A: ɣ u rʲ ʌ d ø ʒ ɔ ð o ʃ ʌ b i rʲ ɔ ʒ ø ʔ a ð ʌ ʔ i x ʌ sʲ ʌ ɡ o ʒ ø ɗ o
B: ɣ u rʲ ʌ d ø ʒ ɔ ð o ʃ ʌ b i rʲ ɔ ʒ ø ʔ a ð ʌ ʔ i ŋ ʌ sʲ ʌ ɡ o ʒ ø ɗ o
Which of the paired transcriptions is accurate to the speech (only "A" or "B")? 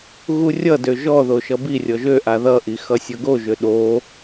A